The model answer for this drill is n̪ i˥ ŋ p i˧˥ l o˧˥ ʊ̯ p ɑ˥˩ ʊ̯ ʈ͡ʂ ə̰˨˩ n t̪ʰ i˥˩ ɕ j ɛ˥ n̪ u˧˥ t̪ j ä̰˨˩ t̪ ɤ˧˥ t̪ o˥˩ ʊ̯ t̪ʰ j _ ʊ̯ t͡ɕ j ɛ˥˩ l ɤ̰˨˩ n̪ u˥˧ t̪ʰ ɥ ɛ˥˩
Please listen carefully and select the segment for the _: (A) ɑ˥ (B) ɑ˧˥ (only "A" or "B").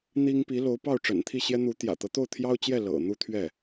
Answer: A